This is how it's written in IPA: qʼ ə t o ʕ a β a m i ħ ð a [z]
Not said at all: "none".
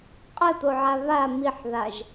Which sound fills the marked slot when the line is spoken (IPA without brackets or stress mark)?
ʒ